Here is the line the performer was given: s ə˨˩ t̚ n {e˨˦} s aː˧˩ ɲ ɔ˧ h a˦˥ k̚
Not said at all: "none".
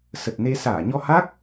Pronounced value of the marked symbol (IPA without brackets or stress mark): e˧